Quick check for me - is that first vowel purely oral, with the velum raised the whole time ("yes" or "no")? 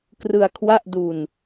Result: yes